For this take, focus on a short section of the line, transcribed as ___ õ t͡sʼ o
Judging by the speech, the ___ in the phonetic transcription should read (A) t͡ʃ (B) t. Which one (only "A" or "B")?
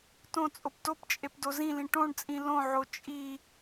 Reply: B